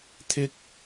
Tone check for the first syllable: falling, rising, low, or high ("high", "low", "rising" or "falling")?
high